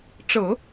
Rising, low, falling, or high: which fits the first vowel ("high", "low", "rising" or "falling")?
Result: low